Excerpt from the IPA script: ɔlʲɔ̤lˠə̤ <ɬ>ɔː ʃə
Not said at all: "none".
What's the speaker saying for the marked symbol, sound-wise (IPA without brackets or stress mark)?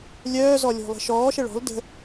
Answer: ʃ